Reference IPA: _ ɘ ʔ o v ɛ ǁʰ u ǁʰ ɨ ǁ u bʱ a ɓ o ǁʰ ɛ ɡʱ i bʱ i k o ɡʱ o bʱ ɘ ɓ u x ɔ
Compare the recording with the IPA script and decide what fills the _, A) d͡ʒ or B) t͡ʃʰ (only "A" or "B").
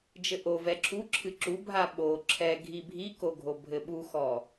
A